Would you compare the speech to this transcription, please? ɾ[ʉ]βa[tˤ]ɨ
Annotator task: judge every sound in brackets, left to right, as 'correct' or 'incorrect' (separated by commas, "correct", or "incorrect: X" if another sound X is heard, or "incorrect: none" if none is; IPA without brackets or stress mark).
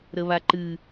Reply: incorrect: ə, incorrect: ǃ